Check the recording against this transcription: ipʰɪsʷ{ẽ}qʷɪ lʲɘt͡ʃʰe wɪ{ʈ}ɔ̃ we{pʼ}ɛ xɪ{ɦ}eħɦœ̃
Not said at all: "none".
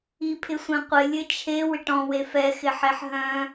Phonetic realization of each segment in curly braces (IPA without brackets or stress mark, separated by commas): ẽ, ʈ, f, ħ